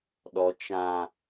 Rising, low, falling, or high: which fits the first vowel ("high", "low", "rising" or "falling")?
low